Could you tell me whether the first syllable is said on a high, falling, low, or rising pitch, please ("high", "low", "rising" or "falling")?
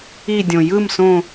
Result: falling